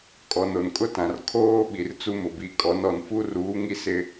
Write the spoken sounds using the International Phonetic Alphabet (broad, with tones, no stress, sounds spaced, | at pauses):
kʼ ɔ˨ n o˨ n kʼ ʊ˦ t ã˨ r kʰ oː˦ ɓ i˨ r t͡s u˦ m ʊ˨ b i˨ kʼ ɔ˨˦ n ɔ˨ n f u˦ r uː˨˦ ŋ i˦ s ɪ˦